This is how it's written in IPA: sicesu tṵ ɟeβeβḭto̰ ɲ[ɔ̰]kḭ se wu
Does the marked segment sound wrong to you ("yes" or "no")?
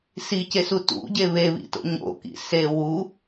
yes